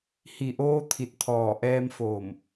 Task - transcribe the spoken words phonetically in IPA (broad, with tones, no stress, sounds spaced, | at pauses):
h i˧˩ ʔ oː˧ t̪ʰ i˧˩ t̚ t̪ʰ ɔː˧˩ ʔ ɛː˧ m f oː˧˩ m